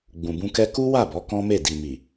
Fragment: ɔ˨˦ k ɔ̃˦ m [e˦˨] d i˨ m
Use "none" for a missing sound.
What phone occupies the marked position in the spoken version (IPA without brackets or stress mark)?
e˦˨